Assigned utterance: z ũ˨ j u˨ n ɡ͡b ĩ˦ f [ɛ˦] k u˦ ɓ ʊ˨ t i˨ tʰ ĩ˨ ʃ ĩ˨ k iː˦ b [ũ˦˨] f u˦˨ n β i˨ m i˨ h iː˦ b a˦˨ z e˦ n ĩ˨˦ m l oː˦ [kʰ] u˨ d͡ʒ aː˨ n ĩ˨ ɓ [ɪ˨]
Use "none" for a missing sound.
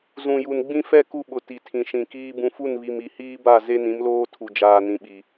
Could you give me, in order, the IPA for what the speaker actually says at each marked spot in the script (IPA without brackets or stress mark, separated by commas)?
ɛ˦, ũ˨, tʰ, i˨